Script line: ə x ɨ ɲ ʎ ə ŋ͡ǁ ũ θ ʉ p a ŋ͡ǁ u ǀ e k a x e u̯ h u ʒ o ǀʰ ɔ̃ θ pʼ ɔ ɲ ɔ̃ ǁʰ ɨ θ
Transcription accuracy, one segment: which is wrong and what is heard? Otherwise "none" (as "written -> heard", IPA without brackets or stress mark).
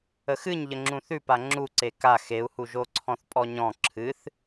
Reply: none